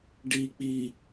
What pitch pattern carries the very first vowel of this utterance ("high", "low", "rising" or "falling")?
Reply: low